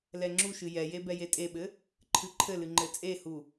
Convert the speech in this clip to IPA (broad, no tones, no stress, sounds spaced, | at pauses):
l ɛ ŋ͡ǁ u ʃ ɨ j ɛ j e b ɛ j e tʼ e ɓ ɘ | ǃʰ ɨ ǃʰ ɘ l ɨ ŋ͡ǃ ɘ t͡sʼ e h u